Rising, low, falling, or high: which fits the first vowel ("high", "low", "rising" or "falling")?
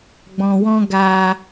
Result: low